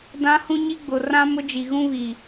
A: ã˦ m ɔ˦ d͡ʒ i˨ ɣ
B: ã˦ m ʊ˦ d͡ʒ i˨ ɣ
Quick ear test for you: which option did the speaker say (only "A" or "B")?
B